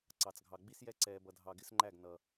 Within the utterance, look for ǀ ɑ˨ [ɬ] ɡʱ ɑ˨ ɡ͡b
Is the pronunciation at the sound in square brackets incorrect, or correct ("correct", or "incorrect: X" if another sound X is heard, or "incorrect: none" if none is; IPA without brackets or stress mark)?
incorrect: t͡s